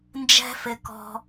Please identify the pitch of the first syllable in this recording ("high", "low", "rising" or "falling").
high